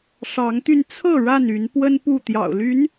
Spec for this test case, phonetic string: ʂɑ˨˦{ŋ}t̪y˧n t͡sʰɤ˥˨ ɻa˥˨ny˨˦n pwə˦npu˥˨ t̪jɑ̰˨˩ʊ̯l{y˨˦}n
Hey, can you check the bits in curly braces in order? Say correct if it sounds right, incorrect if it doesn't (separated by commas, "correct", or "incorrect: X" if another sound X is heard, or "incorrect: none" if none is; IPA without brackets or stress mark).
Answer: correct, correct